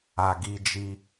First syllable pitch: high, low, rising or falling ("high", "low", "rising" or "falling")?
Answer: low